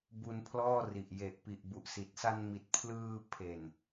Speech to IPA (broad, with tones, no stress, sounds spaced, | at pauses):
b u˧ n pʰ l ɔː˥˩ r i˨˩ ʔ j e˨˩ ʔ p i˨˩ ʔ b u˨˩ ʔ s i˨˩ t̚ s a˧ n m i˨˩ t̚ pʰ l ɯː˧ pʰ e˨˩ n